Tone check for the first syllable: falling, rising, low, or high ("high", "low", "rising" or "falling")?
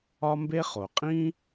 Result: high